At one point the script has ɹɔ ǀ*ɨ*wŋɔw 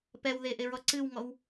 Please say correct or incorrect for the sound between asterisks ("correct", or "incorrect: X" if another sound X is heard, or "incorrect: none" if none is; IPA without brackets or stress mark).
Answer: correct